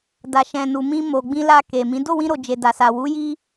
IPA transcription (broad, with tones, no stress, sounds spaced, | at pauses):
d a˨ ʃ ɛ̃˨ n u˨ m ĩ˧ m o˨ ɡ͡b ĩ˧ l a˧ k e˨ m ĩ˨˦ d o˦˨ w ĩ˧ ɾ o˨ d͡ʒ e˨ d a˨ s a˨ w u˨˦ j i˦